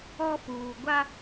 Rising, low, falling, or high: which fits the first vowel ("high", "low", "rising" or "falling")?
high